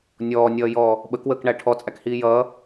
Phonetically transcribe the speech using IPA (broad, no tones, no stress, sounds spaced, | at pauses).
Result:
nʲ ɔː nʲ ʌː j ɔː | ɓ ə k w əː k ɳ æ ʈʰ ɔ t͡sʼ æ k h iː j ʌː